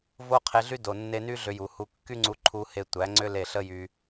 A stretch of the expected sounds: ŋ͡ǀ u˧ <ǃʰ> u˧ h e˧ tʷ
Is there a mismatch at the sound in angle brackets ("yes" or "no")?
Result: no